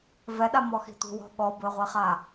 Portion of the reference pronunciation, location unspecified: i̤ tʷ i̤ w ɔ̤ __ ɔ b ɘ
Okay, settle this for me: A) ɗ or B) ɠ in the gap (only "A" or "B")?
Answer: B